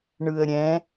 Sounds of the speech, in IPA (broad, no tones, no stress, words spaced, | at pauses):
ɳɯə̯ɾʲɛ̃